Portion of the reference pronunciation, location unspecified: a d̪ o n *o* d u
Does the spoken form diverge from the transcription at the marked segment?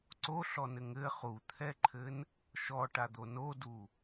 no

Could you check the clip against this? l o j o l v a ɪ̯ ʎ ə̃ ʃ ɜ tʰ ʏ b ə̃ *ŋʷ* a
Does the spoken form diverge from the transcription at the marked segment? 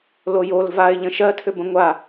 no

